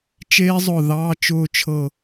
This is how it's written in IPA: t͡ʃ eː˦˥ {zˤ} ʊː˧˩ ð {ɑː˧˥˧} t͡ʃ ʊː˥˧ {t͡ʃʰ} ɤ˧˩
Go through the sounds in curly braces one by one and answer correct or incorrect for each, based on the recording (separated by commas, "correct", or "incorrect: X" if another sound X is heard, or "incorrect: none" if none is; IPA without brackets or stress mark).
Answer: correct, correct, correct